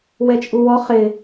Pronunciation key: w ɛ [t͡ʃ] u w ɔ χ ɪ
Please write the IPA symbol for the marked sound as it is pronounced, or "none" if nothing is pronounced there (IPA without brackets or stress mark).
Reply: t͡ʃʼ